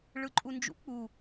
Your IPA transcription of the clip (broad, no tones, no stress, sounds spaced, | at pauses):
ɭ ɯ ǃʼ u n d͡ʒ ṵ k͡p u